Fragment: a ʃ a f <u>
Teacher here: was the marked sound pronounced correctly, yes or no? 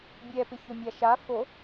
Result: no